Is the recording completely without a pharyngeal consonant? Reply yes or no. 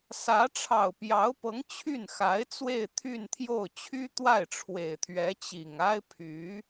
yes